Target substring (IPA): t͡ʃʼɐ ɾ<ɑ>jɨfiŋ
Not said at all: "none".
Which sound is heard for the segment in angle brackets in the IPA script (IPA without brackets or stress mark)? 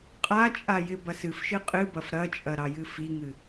ɑ